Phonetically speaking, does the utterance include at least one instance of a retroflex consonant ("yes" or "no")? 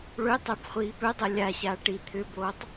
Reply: yes